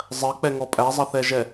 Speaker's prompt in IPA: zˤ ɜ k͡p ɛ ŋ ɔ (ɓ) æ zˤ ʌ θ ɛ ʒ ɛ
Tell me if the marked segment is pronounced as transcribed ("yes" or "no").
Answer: no